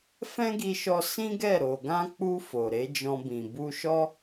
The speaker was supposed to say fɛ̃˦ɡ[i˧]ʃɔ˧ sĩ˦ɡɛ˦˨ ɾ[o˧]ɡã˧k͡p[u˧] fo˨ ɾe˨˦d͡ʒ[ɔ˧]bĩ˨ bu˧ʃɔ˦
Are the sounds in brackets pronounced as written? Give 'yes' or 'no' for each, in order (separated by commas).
yes, no, yes, no